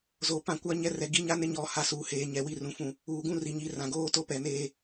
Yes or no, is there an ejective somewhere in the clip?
no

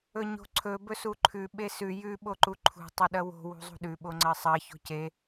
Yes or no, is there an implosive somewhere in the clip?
yes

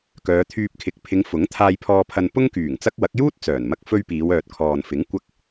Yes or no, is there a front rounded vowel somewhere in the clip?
yes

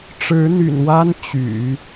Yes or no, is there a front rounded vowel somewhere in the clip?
yes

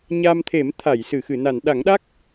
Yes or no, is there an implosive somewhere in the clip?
yes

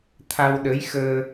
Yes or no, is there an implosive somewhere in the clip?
yes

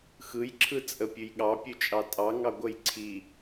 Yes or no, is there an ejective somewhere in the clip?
yes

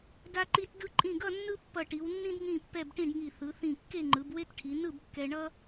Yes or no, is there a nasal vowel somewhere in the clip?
yes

